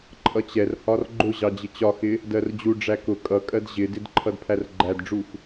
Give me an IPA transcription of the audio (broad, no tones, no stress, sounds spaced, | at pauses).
ǃʼ ʌ t͡ɕ ɛ r h ɒ r ɡ͡ǃ ʊ ʑ ɑ d͡ʑ ɪ t͡ɕ ɒ x ɪ | d ɜ r d͡ʑ u ɖ͡ʐ æ k ʊ kʼ ʌ kʼ ɜ d ʑ ɪ d ɪ d ǃʰ ʌ d pʰ æ r ɡ͡ǃ æ d ɖ͡ʐ u x